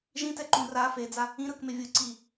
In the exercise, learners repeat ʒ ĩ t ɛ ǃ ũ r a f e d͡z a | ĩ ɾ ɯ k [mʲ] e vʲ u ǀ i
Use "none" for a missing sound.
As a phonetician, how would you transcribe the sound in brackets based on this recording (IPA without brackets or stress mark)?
m